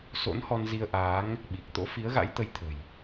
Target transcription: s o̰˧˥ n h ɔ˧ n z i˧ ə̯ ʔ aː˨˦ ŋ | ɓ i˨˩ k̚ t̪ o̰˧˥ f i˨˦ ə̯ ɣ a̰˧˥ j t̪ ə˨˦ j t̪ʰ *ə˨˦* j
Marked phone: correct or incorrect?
incorrect